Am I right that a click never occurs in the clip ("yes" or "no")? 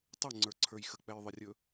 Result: no